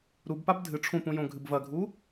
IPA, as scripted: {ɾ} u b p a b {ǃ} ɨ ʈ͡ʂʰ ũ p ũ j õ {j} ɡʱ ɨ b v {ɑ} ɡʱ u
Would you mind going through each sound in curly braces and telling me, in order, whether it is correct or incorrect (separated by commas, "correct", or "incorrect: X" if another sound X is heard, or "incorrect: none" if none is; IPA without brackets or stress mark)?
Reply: correct, incorrect: dʱ, incorrect: none, incorrect: ɐ